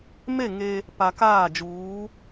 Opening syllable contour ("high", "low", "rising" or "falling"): falling